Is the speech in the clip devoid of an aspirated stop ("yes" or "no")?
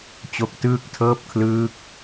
no